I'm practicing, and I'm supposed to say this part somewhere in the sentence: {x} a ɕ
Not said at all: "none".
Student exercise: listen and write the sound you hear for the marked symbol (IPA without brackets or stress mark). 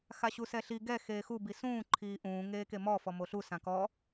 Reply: x